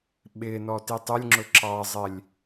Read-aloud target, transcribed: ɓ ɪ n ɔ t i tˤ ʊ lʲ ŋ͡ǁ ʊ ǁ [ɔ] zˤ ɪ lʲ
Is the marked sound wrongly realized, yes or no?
yes